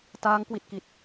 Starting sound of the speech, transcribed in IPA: t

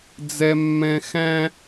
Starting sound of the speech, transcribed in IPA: d͡z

